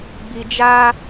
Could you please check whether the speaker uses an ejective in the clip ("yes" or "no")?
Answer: no